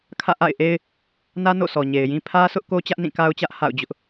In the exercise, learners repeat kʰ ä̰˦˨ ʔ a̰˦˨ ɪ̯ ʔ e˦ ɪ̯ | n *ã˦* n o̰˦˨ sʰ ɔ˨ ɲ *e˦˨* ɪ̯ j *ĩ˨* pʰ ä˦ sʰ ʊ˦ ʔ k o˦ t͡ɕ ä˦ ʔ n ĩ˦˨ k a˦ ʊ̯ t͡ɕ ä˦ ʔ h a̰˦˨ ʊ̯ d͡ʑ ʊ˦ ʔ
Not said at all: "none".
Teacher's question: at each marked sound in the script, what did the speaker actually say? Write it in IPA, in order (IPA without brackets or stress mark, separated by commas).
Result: ä˦, e˨, ĩ˦